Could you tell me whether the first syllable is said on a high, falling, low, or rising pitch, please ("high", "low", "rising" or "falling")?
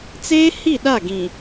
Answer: high